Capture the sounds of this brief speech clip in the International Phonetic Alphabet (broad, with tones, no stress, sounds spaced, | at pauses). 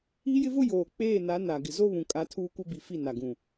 i˦ j ɪ˦ v ʊ˦ j oː˨ k͡p eː˦˨ n a˨˦ n a˨ ɡ ɪ˨ z o˦ β ũ˨ kʼ a˨˦ tʰ uː˦ kʷ ɪ˦ b i˨ f i˦˨ n a˨ ɡ ũ˨